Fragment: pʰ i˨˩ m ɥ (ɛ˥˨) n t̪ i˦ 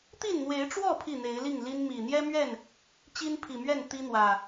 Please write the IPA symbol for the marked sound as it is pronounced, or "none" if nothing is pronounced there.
ɛ˥˨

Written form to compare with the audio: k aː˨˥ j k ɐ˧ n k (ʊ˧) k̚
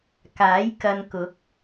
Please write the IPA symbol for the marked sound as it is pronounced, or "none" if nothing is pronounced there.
ʊ˨˥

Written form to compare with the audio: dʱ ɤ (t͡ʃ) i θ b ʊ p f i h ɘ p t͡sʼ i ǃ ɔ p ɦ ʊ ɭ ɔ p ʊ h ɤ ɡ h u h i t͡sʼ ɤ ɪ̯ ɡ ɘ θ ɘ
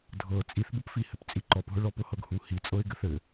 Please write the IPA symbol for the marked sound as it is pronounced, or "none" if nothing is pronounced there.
t͡sʼ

